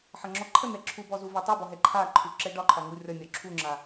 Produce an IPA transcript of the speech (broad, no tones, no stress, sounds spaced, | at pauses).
ħ ʌ ŋ͡ǁ ɔ ǃʰ ə n̪ ɛ ǁʰ u b ɔ z u v ɛ tˤ u b ɔ ɦ ɛ ǃʰ a ǃʰ u ǁ ɛ ɖ ɒ ǃʰ ɒ ŋ u rʲ ɒ nʲ ɒ ǁʰ u ŋ͡ǁ a